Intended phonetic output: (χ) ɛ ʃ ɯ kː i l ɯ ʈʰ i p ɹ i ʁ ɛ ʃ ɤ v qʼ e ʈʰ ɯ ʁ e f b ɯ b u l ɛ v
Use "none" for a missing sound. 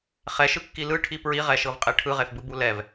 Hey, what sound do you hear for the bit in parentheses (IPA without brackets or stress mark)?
χ